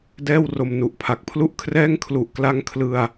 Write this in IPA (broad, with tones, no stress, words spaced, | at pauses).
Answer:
dɛː˥˩wro˧mnu˨˩ʔpʰa˨˩k̚ pʰlu˥˩ʔkʰrɛː˥˩ŋ kʰlu˨˩ʔkla˦˥ŋ kʰlɯ˧a̯